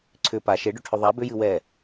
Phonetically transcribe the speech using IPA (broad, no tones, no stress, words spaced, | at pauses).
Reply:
ǀʰʏ pa ʃeɖʏʈʰʏ ðˤa bʏjɨ wɛ